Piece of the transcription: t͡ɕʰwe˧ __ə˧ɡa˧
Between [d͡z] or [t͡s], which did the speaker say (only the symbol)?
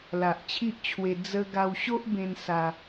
d͡z